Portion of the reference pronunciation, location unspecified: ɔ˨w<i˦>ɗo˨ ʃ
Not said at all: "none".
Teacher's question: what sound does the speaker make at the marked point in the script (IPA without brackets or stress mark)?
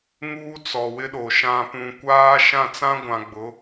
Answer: ɪ˦